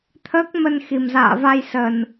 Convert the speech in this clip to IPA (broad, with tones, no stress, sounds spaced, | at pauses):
t̪ʰ əː˦˥ k̚ m ə˧ n x i˨˩ m z a̰ː˧˨ v a˧ j s ə˨˩ n